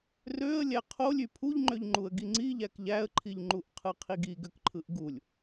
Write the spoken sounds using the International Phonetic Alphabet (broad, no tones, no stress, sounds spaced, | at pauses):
r ø ə̯ lʲ æ qʰ o lʲ y pʰ u ʎ ŋ͡ǃ ø ʎ ŋ͡ǃ u ə̯ ɡ i ŋ͡ǀ i ʎ æ k ʎ æ ə̯ ǃʰ i ʎ ŋ͡ǃ u ʔ qʰ ɯ qʰ i ɡ i ɡ ø k ǃʰ ɯ ʔ ɡ u lʲ